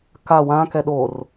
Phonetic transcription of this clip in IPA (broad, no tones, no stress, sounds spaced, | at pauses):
k a w ã k ɛ ɗ o r